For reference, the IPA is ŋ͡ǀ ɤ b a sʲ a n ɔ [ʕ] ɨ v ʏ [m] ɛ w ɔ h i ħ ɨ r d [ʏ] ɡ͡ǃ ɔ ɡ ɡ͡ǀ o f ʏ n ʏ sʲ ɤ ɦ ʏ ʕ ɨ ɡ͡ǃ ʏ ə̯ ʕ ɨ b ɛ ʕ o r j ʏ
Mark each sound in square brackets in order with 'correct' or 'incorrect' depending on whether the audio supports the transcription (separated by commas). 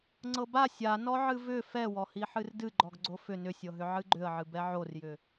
correct, incorrect, incorrect